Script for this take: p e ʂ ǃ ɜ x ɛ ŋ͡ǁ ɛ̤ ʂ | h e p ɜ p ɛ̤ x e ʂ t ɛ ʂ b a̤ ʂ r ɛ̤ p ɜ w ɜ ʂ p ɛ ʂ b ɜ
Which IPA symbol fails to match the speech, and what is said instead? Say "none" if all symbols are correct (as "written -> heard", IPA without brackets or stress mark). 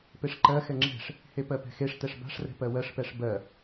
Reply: none